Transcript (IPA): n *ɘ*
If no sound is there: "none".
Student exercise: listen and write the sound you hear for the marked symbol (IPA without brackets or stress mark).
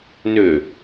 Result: ø